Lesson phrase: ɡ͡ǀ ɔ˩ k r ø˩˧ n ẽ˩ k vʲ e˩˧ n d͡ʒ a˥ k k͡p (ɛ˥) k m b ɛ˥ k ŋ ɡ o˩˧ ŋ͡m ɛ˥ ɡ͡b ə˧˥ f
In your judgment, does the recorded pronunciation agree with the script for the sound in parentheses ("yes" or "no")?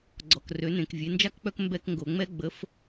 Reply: no